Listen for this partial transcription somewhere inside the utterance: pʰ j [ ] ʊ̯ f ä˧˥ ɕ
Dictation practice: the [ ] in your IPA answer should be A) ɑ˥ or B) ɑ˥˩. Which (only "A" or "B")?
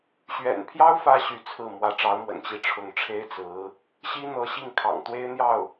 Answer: A